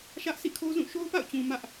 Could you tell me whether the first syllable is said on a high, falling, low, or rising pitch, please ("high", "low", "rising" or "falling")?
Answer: high